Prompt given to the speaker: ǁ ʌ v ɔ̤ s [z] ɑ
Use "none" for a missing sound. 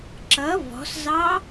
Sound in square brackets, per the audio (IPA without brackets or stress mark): z